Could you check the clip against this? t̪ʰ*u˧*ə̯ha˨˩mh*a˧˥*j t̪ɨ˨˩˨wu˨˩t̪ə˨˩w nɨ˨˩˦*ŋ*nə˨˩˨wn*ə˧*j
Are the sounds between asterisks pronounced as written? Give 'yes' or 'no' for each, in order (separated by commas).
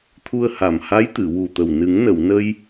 yes, yes, yes, yes